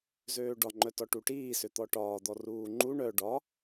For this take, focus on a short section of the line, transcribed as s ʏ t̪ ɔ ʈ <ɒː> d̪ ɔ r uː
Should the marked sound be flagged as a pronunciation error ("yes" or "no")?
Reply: no